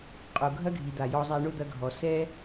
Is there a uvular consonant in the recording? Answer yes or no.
yes